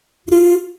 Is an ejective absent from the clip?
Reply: yes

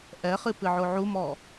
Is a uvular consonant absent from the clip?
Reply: no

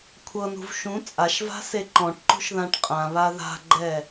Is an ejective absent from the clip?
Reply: no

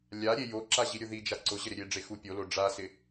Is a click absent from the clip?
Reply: no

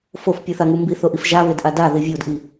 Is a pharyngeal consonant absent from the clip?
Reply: yes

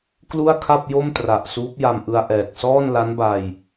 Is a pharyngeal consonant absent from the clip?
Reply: yes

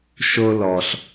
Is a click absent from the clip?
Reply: yes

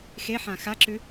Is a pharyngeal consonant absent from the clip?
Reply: no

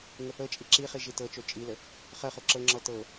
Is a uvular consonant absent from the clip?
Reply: no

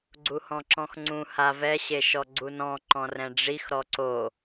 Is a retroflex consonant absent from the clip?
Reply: no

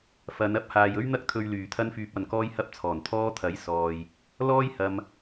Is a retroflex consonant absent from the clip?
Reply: yes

